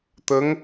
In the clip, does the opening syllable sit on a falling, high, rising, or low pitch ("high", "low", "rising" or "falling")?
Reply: rising